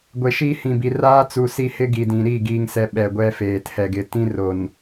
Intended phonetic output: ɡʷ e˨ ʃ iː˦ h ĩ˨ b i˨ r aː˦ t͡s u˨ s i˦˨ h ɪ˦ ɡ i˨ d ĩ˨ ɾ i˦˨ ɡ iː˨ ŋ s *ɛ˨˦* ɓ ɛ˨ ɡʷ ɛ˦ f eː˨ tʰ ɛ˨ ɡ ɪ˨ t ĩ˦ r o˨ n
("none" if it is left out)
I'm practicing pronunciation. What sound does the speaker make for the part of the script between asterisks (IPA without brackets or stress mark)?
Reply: ɛ˨